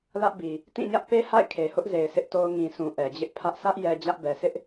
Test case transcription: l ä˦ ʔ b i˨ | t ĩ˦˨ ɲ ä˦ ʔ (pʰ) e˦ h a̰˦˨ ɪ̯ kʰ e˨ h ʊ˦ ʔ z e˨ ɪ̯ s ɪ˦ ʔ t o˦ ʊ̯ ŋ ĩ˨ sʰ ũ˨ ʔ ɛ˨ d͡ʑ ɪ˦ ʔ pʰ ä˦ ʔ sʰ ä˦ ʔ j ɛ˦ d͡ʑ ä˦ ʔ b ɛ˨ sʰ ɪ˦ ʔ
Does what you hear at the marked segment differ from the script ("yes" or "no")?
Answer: yes